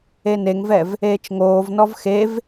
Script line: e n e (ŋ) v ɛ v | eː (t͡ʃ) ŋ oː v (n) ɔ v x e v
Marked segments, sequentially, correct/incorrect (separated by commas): correct, correct, correct